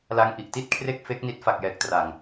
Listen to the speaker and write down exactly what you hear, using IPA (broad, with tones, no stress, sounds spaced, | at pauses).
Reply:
l a˧ ŋ ʔ i˨˩ ʔ t i˥˩ t̚ kʰ r e˥˩ k̚ f e˦˥ k̚ n i˦˥ t̚ f a˨˩ k̚ j ɛː˨˩ k̚ t r a˨˩ ŋ